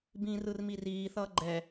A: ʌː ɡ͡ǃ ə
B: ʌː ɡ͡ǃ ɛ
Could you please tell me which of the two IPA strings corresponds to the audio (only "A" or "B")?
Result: B